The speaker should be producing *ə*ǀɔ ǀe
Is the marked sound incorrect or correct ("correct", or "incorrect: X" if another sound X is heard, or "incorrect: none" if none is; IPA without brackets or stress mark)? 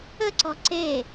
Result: correct